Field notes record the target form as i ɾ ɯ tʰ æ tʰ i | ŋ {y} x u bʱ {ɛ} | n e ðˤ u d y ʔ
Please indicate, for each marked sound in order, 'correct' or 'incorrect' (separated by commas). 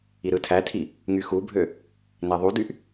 correct, incorrect